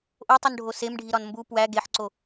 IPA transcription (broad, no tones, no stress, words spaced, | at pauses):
ʔotˤunɖʱo semɖʱiɾɒn mbu pwæ ɡeħǀo